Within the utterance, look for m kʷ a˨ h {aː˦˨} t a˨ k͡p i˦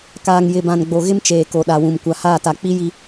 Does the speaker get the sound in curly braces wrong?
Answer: no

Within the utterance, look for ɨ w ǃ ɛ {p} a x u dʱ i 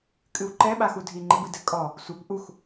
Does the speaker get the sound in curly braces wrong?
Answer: yes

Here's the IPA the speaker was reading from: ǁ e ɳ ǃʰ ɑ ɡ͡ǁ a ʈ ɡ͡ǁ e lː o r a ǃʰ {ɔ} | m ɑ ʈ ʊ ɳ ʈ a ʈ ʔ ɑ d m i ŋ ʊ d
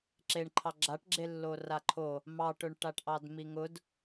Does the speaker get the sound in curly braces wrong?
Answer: yes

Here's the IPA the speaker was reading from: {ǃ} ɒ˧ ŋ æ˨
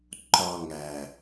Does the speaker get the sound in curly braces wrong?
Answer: no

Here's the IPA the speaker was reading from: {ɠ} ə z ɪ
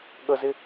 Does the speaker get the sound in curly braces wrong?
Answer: no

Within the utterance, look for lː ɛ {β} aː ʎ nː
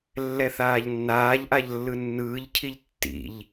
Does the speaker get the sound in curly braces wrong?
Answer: yes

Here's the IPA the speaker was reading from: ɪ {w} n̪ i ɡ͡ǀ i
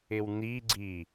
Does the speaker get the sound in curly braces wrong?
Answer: no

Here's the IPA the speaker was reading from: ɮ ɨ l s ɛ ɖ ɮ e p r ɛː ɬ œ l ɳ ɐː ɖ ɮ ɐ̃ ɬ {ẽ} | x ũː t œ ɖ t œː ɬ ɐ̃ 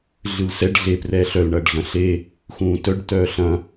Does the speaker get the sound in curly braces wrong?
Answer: yes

